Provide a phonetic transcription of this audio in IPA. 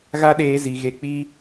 ɣ a˦ ɗ eː˧ z i˨ ɣ e˧ k͡p i˦

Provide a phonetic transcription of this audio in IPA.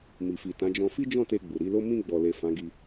m i˨ f i˨ t ã˨˦ d͡ʒ ɔ̃˧ f i˦ d͡ʒ ɔ̃˦˨ t e˧ ɡ͡b u˨ ɾ i˨˦ l o˦ m ĩ˧ ɡ͡b ɔ˨ l e˨ f ã˨˦ ɡ i˧

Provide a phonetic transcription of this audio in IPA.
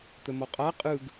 t̪ ə m ɔ qʼ a qʼ ɯ ɡ

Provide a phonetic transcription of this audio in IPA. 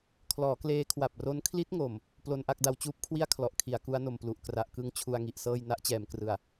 kʰ l ɔː˩˦ k l eː˦˥ kʰ w a˨˩ p̚ r o˦˥ n kʰ l i˦˥ t̚ ŋ o˨˩ m | p l o˧ n ʔ a˥˩ k̚ d a˧ w t͡ɕ uː˦˥ p̚ kʰ w i˥˩ a̯ kʰ l ɔ˨˩ ʔ kʰ i˩˦ a̯ k u˦˥ a̯ n o˨˩ m p l u˨˩ ʔ k r a˨˩ ʔ k ɯ˧ ŋ t͡ɕʰ u˧ a̯ ŋ i˨˩ ʔ s ɤː˥˩ j n a˦˥ ʔ t͡ɕ ɛː˩˦ m k r ɯ˨˩ a̯

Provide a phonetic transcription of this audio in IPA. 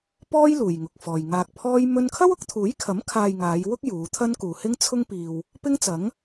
p ɔː˥ j l uː˨ j ŋ ʊ˨ k̚ f ɔː˨ j ŋ aː˨ k̚ pʰ ɔː˥ j m ɵ˥ n kʰ ɐ˥ w ʊ˨˥ k̚ t̪ʰ uː˨˥ j kʰ ɐ˨˥ m kʰ aː˧ j ŋ aː˨˧ j w ʊ˥ k̚ j uː˨˧ t̪ʰ ɐ˥ n k uː˨ h ɪ˥ ŋ t͡sʰ ʊ˥ ŋ p iː˨ w | p ɪ˥ ŋ t͡s ɐ˨˥ ŋ

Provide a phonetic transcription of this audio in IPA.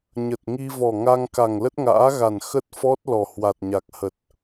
ɲ ə˨˩ t̚ ŋ i˧ v ɔ˨˩ ŋ a˧ ŋ k a˨˩ ŋ l ə˦˥ t̚ ŋ a̰ː˧˥ ɣ a˨˩ n x ə˦˥ t̚ f ɔ˦˥ t̚ l ɔ˨˩ h w a˨˩ t̚ ɲ a˨˩ k̚ h ə˨˩ t̚

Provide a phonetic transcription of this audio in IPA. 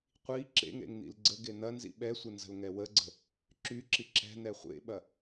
qʷ i ǁ ḛ ŋ ɾ ḛ ŋ n̪ ḭ l ɡ͡ǀ ə ɡ e n̪ ɐ n z ḭ ɓ ɛ sʷ ɪ n z ə̤ l ŋ ɛ w ə ɡ͡ǀ ə̤ | ǁ y ǁ i ǁ ɛ̤ n̪ ɛ χʷ ḛ ɓ ɐ

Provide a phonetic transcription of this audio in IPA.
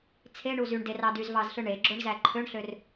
t͡sʰ e ɳ u z y ɳ d e r ɑ d y z v ɑ z ɬ ɯ ɳ e ɡ͡ǁ o ɳ z æ ǃʰ ø ɳ ɬ ø r

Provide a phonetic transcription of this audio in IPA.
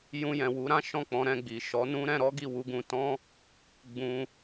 j ũ˧ j ɛ̃˨ w u˨˦ ɾ ã˦ ʃ ɔ̃˦˨ k͡p ɔ̃˨˦ ɾ ɛ̃˦˨ ɡ͡b i˨ ʃ ɔ˨˦ n ũ˦ ɾ ɛ̃˧ ɾ ɔ˦ ɡ i˦˨ w u˨˦ ɡ ũ˧ t ɔ̃˦ | ɡ͡b ũ˧

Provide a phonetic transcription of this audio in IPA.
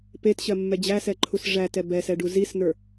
p e t ɕ ɜ mː ɛ d͡ʑ æ s ɛ ǃʰ u s ʐ æ t ɛ b ɛ s ɛ ɖ u z i s n ə˞

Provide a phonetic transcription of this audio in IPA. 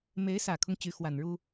m e˧˥ ɪ̯ s ä˨˩ kʰ ʊ˦ ŋ t͡ɕ y˧˥ x w a˨˩ n ɻ u˥

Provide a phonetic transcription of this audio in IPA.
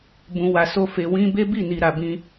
b ũ˧ w a˧ s o˦ f e˧ w ĩ˦ b e˦ b i˦˨ n i˨ ɾ a˨ b ĩ˧

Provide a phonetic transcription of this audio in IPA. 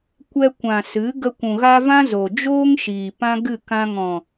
kʷ ɛ˧ kʷ ã˨ s ɨ˨˦ ɡ ə˧ kʷ ũ˨ ɣ a˦ v ã˦ z o˨ d͡ʒ oː˦ ŋ ʃ iː˨ p ã˦ ɡ ɨ˦˨ k ã˧ ŋ ɔ̃˨

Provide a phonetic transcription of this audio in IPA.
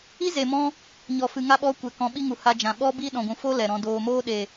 i˦ z e˨ m ɔ̃˧ | ɲ ɔ˨ f ɨ˨ ŋ a˧ ɓ ɔ˨˦ kʷ ɛ˨ k ɔ̃˨˦ ɓ i˦ ŋ u˨ h a˧ d͡ʒ ã˨ ɓ ɔ˦ b i˦ ɗ ɔ̃˨ ɡʷ ũ˨ f o˦ l ɛ˨ ɾ ɔ̃˧ d oː˨ m oː˦ ɗ e˨

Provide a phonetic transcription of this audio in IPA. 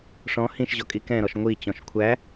ʂ ɔ̃ h ĩ ʃ ʑ ɔ kʼ i k ɛ̃ ɾ ɔ ʃ ŋʷ i t͡ɕ ɔ̃ ʃ kʷʰ æ

